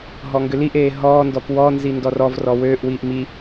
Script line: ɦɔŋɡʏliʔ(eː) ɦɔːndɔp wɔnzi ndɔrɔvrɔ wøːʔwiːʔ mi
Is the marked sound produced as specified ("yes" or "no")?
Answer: yes